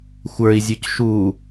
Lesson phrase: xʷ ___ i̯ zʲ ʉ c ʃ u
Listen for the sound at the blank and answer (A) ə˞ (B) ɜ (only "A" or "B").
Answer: A